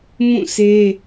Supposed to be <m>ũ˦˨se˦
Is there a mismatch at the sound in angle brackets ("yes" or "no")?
no